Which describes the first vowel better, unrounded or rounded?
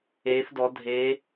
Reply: unrounded